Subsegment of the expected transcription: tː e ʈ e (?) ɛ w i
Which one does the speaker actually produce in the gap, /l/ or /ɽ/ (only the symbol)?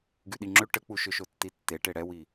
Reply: ɽ